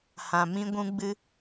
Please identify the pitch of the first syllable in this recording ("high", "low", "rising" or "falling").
low